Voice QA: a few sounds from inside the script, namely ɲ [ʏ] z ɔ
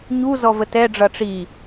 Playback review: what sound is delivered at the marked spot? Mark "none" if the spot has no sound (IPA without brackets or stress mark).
u